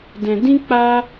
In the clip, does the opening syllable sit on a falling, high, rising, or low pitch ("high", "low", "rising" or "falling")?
low